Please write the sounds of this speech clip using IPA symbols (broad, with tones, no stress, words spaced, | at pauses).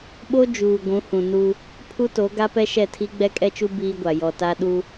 ɓo˦ d͡ʒuː˨ɡʷũ˨˦hũ˨ nu˦ | pʰu˦to˨˦ ɡa˦pɛ˦ʃɛ˦˨tʰi˦ ɡ͡bɛ˦kʼɛ˦t͡ʃu˦ biː˦ɡʷa˨ jɔ˨ta˦ ɗu˦